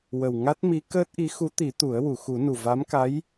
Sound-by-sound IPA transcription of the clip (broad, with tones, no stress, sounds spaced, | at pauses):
w ə˨˩ w ŋ a˦˥ t̚ m i˧˥ k əː˦˥ t̚ ʔ i˧˥ x u˧˥ t̪ i˨˩˦ t̪ u˨˩˦ ə̯ w u˨˩˨ x u˨˩˦ n u˨˩ v a˧˥ m k a˧˥ j